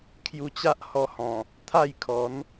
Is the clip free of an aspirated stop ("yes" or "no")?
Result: no